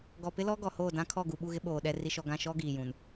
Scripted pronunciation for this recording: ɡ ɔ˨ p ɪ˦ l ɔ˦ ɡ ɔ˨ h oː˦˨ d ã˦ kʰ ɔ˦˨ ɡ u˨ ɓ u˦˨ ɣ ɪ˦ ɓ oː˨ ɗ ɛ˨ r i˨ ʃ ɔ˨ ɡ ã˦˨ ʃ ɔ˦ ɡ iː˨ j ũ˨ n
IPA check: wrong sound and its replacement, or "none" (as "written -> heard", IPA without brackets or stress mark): none